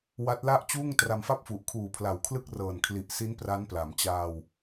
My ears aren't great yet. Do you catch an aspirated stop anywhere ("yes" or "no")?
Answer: yes